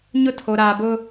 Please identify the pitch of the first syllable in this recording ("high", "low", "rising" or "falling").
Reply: high